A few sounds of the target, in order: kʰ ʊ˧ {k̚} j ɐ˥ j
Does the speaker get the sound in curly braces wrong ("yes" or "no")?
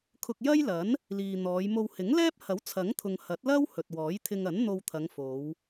no